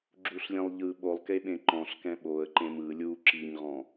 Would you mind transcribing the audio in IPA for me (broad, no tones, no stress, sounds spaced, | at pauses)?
ɡ͡ǁ u ɬ lʲ ẽ lˠ ʎ ɯ ɓ o lˠ k e ɓ ẽ ǃ ɔ̃ ɬ k ɛ̃ ɓ o ə̯ ǃ ẽ m ɯ lʲ u ǁ i ɲ ʁ ɔ̃